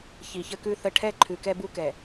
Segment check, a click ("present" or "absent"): present